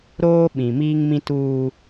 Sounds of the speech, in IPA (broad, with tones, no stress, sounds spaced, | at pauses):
ɾ oː˦ ɓ ĩ˨ m iː˦ ŋ m ĩ˦ t uː˦